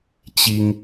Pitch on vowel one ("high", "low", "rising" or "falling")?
high